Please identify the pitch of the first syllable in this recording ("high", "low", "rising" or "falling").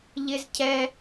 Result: low